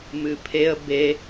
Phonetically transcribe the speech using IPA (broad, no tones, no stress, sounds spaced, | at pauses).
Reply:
m ɨ pʰ e ə̯ b e